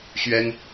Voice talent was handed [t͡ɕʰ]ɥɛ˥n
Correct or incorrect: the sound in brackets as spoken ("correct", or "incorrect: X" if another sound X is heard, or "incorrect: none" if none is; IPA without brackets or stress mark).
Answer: incorrect: ɕ